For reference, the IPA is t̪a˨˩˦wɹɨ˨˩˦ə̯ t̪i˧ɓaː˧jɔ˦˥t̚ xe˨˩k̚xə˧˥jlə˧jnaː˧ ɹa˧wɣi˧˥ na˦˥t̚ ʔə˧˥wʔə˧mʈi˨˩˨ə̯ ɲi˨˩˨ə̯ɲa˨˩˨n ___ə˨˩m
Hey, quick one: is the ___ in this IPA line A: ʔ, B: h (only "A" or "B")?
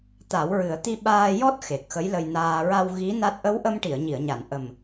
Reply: A